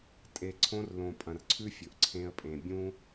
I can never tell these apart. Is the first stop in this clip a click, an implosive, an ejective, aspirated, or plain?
ejective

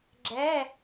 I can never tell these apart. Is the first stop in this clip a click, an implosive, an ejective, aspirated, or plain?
click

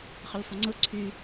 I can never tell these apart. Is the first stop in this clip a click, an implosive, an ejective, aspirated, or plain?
click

